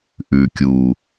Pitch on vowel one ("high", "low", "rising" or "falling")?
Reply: low